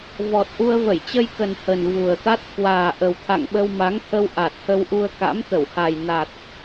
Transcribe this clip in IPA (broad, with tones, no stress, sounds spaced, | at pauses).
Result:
v ɔ˨˩ t̚ ʔ u˧ ə̯ v ə˧˩ j t͡ɕ ə˧ j k ə˨˩ n h ə˨˩ n v u˨˩ ə̯ t̪ a˦˥ t̚ k w aː˨˩ ʔ ə˨˩ w t̪ʰ a̰˧˨ ŋ ɓ ə˧ w m a˨˦ ŋ t̪ʰ ə˧ w ʔ a˨˩ t̚ h ə˧ w ʔ u˧ ə̯ k a̰˧˥ m t̪ ə˧˩ w h a˨˩ j n a˨˩ t̚